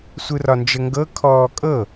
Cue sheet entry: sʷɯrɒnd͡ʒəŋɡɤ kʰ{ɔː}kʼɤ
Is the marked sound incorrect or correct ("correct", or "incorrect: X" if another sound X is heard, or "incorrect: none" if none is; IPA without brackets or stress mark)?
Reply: correct